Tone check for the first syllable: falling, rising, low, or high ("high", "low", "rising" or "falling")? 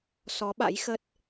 rising